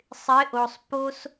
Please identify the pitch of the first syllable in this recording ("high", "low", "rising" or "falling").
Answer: rising